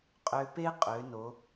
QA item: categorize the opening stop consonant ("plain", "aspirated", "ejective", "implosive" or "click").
ejective